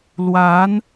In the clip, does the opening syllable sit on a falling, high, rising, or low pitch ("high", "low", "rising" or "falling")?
rising